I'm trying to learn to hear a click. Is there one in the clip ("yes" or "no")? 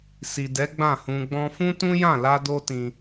no